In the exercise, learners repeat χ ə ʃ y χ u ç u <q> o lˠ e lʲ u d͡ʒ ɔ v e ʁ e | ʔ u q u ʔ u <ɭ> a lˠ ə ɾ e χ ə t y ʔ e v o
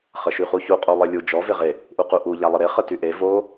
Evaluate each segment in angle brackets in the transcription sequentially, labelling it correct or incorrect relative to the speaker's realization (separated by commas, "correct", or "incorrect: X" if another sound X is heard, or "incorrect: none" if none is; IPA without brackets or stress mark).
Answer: incorrect: qʼ, incorrect: ʎ